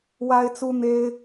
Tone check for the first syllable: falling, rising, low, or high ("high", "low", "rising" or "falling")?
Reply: high